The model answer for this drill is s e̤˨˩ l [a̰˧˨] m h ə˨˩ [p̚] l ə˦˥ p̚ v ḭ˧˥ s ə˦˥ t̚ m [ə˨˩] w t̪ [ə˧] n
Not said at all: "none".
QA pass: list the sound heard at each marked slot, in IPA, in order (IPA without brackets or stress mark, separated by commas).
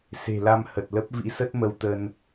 a˧, t̚, ə˧, ə˧